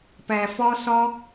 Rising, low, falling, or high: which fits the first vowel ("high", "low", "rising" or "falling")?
low